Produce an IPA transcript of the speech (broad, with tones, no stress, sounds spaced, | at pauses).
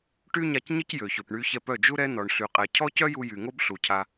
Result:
ʈ y˦ ɲ a˧ c ɲ ə˦ c j ø˨ ç ø˨ p ɳ y˧ ç ɛ˧ p œ˦˨ d͡ʒ u˦ ɾ ɛ˦ n ɔ˨ ɳ ɬ y˨ qʼ ɛ˨ cʰ ɔ˦ c œ˦ j u˧ j y˨ ŋ o˦ b ɬ u˨ cʰ a˧